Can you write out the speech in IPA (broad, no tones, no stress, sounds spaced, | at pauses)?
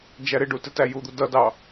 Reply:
d͡ʒ æ ɾ ɪ ɖ u t ɪ t æ j u d̪ u d ʌ d ɑ